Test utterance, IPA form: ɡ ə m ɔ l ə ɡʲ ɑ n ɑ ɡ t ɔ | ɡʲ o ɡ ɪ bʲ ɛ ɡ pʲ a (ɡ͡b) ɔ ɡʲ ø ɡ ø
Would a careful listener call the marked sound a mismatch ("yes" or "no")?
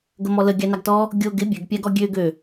yes